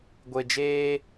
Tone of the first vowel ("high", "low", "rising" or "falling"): low